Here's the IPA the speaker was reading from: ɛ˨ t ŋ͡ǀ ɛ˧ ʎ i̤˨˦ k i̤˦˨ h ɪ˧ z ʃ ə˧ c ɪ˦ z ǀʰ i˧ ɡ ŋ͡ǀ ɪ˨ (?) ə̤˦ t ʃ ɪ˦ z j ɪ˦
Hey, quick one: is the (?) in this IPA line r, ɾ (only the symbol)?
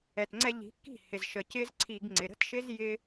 ɾ